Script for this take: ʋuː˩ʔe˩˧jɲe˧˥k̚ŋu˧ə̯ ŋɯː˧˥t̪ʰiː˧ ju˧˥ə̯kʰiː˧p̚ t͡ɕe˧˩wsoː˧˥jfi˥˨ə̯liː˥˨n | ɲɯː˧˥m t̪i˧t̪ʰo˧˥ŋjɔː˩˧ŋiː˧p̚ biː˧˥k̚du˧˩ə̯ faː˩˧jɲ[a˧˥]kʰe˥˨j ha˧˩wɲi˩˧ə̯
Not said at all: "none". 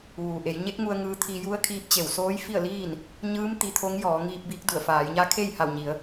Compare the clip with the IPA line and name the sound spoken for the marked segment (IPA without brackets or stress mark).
a˧˥